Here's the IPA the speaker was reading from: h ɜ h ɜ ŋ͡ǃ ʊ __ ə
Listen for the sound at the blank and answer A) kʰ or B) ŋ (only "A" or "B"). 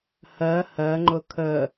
A